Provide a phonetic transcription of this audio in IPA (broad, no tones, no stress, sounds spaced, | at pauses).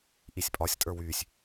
ʔ i sʲ pʼ ɒ sʲ tʼ ə˞ w yː sʲ